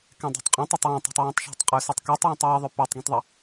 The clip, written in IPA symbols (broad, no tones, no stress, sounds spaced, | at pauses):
k ɛ̃ dˤ o̤ tˤ qʼ ĩ tˤ ɑ tˤ w ɔ̃ tˤ ɑ̤ tˤ w ɔ̃ tˤ ʃ ɑ̤ tˤ qʼ ø s ɔ tˤ k u tˤ w ɔ̃ tˤ w i ðˤ ø p ɛ tˤ ɡ ĩ tˤ ðˤ a